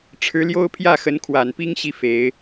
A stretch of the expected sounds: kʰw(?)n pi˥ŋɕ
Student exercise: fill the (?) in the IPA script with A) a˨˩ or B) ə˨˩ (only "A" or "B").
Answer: A